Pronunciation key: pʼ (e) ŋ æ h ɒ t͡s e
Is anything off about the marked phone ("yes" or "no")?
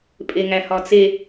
no